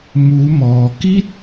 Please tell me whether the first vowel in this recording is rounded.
yes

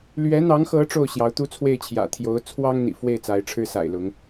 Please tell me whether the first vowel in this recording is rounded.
no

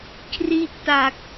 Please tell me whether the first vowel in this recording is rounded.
no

